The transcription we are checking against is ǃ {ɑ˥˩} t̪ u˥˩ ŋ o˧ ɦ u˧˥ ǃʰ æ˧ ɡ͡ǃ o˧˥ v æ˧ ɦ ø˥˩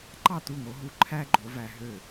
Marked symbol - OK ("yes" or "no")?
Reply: yes